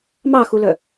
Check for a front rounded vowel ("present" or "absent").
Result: present